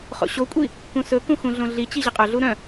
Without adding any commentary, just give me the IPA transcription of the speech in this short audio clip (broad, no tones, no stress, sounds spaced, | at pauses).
χ o̰ ɕ o kʷʼ i | k ũ s ɵ k ũ x ũ ɮ õ ɮ i t͡ɕ i ʑ ɛ qʼ œ ɮ u ɾ œ̃